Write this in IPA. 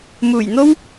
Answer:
m uː˨˩ j n̪ o˥ w

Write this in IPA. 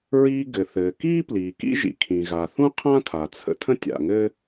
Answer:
ɹ iː˧ ɡ ɘ˩ θ ɘː˩ k iː˥ p l iː˩ k ḭ˥ ʒ ḭ˩ kʰ ĩ˩ ɣ a˩ θ ũ˥ qʰ ã˥ tʰ a˩ t͡sʰ ə̰˧ tʰ ə̃˥ tʲ a̰˩ ŋ ɘː˥

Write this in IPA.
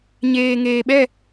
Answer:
ɲ eː˨ ŋ eː˨ ɓ ɛ˦˨

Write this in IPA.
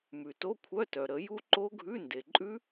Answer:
m ʉ˩ t o˧˥˧ kʷʰ œ˧˥˧ t œ˩ ɾ ə˨˩˦ j u˦˥ ǃ o˦˥ ɡʱ ʉ˧˥˧ n d e˩ ǃʼ ʉ˦˥

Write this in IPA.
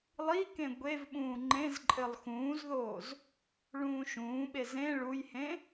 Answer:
lˠ i k ẽ ɡʷ e v ɓ ũː ŋ͡ǃ ẽ z ǃʼ ɘ lˠ x ũː z ð oː z | ɭ ũː ʃ ũː ɓ e z ẽ ɭ u j h ẽ

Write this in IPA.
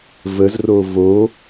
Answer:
v ə z r o v o

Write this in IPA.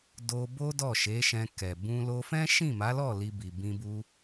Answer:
d o˧ b o˦ d ɔ˦˨ ʃ e˨˦ ʃ ɛ̃˧ k ɛ˨ b ũ˧ l o˧ f ɛ̃˦ ʃ ĩ˦˨ m a˨˦ l ɔ˦˨ l i˧ b i˨ b ĩ˧ b u˧

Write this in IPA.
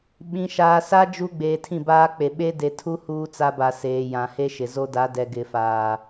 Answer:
ɓ ĩ˨ ʃ aː˨ s a˦ d͡ʒ u˦ ɡ͡b eː˨ tʰ ĩ˦˨ b aː˦ k͡p e˨ ɓ e˦ d e˨ tʰ u˦ h uː˦ t͡s a˦ b a˨ s eː˨ j ã˨ h e˦ ʃ ɪ˨ z o˦ d a˨˦ d ɛ˨ ɡ ɪ˨ f aː˨

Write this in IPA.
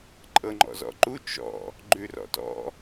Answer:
ǃʼ ɤ ŋ͡ǃ ɔ̰ z ɔ̰ ǃ u t͡ʃ ɔ̰ | ɡ͡ǃ ʉ r ɔ̰ t ɔ̰

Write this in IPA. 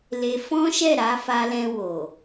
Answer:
l e˧ f ɔ̃˦ ʃ ɛ˦˨ ɾ a˨˦ f a˧ l ɛ̃˧ w o˨

